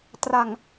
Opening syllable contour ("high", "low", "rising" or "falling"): low